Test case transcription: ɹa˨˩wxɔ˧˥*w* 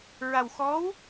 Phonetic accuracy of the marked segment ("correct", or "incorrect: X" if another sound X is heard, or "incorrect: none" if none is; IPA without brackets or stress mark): correct